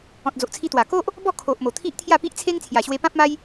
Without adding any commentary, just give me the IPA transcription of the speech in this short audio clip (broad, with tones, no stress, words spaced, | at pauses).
ɔ̃˨t̚d͡zo˨ʔt͡sʰi˧t̪wa˨˩ ko˦ʔ | bɔ˥˧kʰo˨ʔmo˨˩ t̪ʰi˦ʔt̪ʰja˥˧pi˦ʔt͡sʰe˦ŋ t͡sʰja˨˩ɕwe˧pã˦p̚ma˦j